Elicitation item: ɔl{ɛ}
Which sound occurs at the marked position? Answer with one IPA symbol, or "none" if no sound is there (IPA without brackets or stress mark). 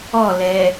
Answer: ɛ